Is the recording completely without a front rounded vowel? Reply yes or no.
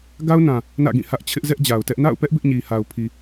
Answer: yes